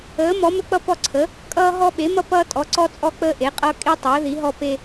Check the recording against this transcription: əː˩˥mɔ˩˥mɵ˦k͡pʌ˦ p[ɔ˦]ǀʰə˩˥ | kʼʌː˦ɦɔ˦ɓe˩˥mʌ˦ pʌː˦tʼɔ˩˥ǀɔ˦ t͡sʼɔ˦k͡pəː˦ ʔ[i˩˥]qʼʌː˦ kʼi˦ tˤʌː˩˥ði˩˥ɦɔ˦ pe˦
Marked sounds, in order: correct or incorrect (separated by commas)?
correct, incorrect